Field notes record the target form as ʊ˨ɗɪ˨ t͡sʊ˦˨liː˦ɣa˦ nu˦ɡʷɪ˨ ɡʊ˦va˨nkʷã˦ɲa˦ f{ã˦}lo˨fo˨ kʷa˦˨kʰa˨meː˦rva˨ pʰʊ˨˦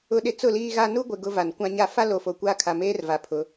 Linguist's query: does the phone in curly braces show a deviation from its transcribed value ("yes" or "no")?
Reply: yes